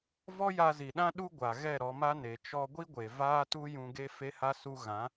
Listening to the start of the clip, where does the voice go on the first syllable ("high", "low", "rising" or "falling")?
high